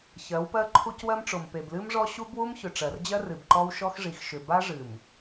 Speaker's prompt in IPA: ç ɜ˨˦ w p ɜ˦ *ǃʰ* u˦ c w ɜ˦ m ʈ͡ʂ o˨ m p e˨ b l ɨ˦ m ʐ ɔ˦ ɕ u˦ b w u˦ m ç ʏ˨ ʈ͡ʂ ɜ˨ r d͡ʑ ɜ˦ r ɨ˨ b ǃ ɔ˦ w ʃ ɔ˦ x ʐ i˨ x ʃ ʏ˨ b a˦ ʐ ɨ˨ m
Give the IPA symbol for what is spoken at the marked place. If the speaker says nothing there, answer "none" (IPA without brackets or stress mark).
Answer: ǃʰ